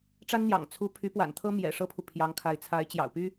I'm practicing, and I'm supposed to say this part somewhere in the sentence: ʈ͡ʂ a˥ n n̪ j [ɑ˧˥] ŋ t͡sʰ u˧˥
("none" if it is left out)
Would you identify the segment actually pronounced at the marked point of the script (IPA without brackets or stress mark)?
ɑ̰˨˩